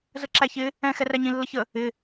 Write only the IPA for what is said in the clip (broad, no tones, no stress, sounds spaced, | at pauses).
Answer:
z ə ǁ æ ç ɪ | ɛ̃ x ɛ r æ ɲ ĩ lː ə ç ə | ɪ